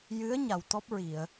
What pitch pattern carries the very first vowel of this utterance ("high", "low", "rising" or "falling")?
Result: rising